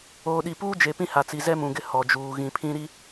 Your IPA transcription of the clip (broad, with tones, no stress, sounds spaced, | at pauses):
oː˨ ɗ i˨ p uː˦ d͡ʒ e˨ p ĩ˦ h a˨ t͡s i˨ z ɛ˦ m ũ˨ ɡ ɪ˦ h ɔ˨ d͡ʒ uː˨ ɣ ĩ˨ pʰ ĩ˦ ɾ i˦